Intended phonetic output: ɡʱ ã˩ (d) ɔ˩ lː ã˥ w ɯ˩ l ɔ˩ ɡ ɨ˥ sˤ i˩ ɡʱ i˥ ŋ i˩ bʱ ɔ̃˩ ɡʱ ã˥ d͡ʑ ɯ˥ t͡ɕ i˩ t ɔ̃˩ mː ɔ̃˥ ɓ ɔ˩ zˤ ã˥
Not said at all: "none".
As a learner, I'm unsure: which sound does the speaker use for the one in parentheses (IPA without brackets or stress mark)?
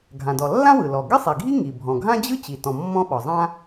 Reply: d